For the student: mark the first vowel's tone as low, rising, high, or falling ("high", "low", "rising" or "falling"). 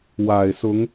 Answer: low